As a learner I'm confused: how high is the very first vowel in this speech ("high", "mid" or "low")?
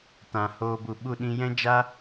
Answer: low